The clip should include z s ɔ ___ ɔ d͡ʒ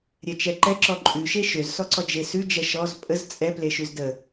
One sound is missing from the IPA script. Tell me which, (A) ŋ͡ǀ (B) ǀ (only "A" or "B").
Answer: B